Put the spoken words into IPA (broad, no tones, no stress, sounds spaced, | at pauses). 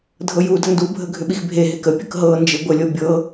dʱ ɤ j u d ə n d u bʱ ə ɡʱ ʏ ɓ i x bʱ e ɦ e k ə pʲ ə k ɦ ɤ n d͡ʒ e ɡʷ ə lʲ ɤ bʲ ɤ